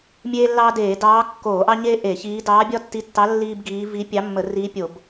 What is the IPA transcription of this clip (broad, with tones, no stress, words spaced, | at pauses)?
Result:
mʲeː˥lːɑː˥ deː˧˩˧dɑː˧˥ kːoː˧˩˧ʔɑ˥ ɲeː˥ ʔe˧˩˧çiː˧˥ dɑː˧˥bʲɒ˥tːi˧˥tːɑ˧˥ lːiː˥bɡiː˧˥ vi˧˥ pʲɑ˧˥mːə˧˩˧ riː˧˥pʲo˧˩˧b